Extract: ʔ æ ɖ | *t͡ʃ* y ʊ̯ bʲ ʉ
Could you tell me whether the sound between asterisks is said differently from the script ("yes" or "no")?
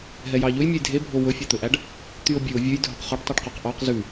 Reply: yes